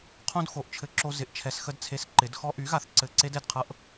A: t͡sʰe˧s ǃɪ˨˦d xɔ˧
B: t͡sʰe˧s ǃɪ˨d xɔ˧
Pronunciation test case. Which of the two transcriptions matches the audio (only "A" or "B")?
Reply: A